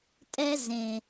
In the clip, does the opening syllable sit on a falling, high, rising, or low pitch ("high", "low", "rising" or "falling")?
high